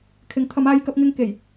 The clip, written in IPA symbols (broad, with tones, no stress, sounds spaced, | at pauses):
kʰ ɪ˨˥ ŋ t̪ʰ ɐ˨˧ m aː˧ j k ɐ˧ p̚ ŋ ɪ˧ ŋ k e˨˩ j